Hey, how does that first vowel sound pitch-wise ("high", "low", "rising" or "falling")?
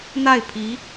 falling